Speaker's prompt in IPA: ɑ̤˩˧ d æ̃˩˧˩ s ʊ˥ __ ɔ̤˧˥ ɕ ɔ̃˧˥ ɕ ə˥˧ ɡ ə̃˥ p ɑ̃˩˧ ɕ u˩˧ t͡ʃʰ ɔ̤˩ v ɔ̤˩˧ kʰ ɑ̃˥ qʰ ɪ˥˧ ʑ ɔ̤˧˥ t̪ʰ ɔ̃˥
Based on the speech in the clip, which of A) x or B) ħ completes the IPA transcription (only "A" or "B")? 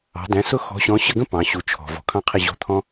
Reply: A